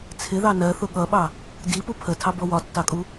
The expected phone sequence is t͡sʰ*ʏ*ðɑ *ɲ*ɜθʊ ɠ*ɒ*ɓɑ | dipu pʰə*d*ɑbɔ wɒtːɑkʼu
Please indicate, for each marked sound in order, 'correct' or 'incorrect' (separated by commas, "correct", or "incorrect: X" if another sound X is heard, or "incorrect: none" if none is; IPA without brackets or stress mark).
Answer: incorrect: ɪ, incorrect: n, incorrect: ʌ, incorrect: tʰ